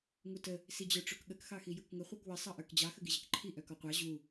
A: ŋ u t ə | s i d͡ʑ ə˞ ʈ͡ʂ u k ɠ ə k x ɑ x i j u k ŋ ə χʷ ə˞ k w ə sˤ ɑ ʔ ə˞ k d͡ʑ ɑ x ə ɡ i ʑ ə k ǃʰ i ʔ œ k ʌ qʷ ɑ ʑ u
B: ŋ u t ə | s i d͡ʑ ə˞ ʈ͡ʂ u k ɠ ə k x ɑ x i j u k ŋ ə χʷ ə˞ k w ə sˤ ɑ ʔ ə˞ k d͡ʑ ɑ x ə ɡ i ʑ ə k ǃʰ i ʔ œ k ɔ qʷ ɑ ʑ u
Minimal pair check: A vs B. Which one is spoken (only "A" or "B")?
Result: B